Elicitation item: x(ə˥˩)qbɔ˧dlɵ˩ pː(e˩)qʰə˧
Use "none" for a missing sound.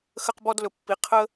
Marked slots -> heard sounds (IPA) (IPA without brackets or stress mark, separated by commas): ə˧, i˩